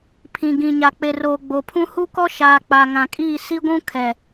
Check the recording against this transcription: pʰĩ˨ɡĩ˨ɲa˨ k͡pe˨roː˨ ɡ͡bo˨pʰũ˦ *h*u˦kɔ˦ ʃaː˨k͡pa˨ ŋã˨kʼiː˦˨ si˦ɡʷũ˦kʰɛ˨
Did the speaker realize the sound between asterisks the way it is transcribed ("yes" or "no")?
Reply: yes